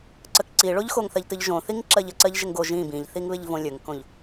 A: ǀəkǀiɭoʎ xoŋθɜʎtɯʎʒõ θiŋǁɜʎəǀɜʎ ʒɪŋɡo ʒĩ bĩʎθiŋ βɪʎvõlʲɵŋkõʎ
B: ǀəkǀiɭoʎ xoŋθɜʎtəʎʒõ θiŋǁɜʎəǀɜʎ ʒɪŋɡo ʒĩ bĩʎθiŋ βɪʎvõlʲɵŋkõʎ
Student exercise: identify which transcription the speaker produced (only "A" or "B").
A